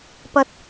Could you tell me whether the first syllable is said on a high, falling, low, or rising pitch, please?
high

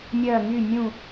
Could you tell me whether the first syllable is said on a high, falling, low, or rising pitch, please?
falling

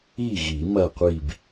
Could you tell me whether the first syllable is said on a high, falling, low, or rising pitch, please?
falling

